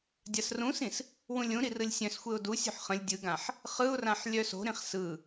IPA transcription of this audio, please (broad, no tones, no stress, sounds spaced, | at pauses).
dʲ a s r ũ s ĩ s | w ũ lʲ ũ ɾ i r ɯ lʲ sʲ œ̃ s xʷ e ʊ̯ d u sʲ ṳ ħ χ ə̃ lʲ dʲ ɯ ɡ ã ħ | χ ɯ ʊ̯ r ã ħ lʲ œ s o̤ ɾ ĩ χ s ɯ